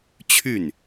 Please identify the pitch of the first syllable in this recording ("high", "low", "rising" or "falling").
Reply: falling